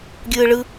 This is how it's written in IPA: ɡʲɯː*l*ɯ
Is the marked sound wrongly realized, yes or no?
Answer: yes